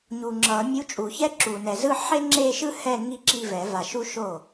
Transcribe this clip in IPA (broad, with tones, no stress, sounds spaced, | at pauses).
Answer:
ɲ u˨ ŋ͡ǁ ʌ˨˩˦ mʲ u˧˥ t͡ʃʼ u˨˩˦ ç ɛ˥ ǁ u˨ n ɛ˨ z ɯ˥˧ ħ e˥ ŋ͡ǁ e˥˧ ʃ ɯ˥ h ɛ˥˧ ŋ i˥˧ ǁ i˥˧ v ɛ˨˩˦ v a˨ ʃ u˥ ʃ o˥˩